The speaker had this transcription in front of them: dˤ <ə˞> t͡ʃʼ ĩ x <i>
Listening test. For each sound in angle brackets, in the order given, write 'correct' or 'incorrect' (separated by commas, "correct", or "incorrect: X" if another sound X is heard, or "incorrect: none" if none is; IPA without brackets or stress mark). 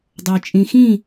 correct, incorrect: ĩ